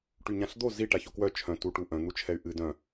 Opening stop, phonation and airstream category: plain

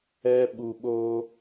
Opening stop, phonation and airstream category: implosive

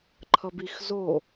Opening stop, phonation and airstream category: click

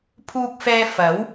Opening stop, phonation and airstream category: aspirated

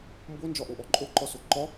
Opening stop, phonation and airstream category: plain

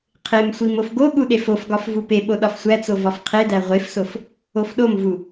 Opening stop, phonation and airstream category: aspirated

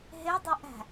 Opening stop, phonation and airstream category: plain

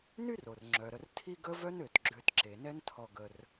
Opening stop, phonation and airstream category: click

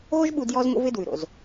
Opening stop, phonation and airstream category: implosive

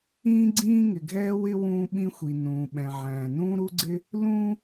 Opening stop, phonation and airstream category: click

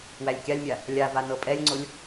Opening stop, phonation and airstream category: plain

